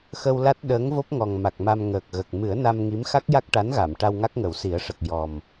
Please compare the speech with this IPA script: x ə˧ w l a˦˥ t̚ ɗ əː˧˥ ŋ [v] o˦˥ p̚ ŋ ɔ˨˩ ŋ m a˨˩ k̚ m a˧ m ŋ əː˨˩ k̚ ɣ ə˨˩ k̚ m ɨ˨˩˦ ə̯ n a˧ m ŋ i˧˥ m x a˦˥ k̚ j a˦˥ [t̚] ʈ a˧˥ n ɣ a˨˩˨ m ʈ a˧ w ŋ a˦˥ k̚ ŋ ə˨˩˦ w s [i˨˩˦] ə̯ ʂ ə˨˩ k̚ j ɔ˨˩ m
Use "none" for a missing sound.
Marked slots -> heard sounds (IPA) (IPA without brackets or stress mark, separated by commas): v, k̚, i˨˩˦